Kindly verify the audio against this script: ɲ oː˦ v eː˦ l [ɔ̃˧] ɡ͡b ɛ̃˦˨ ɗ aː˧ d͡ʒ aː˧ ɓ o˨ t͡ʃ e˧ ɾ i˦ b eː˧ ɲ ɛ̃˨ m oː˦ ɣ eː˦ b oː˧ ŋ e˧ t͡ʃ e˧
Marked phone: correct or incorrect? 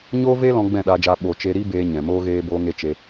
correct